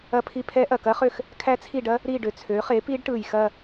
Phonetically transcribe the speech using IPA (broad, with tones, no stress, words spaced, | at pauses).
ɐ˦˨pʰi˦˨pʰɛ˦˥ ʔɐ˨˩kɐ˦˥χø˦˨x | kʰæ˦˥t͡sʰi˦˨ɖɐ˦˥ | ɾi˦˨ɖø˨˩t͡sʰø˩˥ χe˩˥pi˦˥ɖʈɯ˨˩j xɐ˦˨